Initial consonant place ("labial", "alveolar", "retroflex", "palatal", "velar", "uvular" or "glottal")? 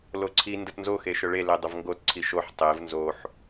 alveolar